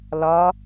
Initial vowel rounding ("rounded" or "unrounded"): rounded